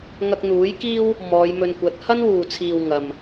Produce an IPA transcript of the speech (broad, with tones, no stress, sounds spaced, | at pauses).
ŋ ɐ˧ k̚ n̪ uː˨˥ j k iː˥ w | m ɔː˨˧ j m ɵ˧ n kʷ ɐ˨˥ t̚ h ɐ˥ n w uː˨ t͡sʰ iː˨ w ŋ ɐ˨ m